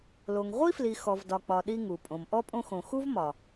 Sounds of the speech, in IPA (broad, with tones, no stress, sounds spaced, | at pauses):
l o˨ ŋ ʁʷ i˥ f l i˨ x ɔ˨ v d ɒ˨ k͡p ɒ˨ ɗ i˦ ŋ u˩ pʼ õ˨ m ʔ ɔ˥ pʼ õ˦ x õ˨ x u˥ v m ɒ˩